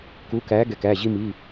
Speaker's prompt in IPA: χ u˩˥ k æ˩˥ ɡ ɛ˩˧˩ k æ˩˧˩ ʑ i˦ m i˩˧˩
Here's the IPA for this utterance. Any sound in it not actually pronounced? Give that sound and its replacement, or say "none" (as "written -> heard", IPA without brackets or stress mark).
χ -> k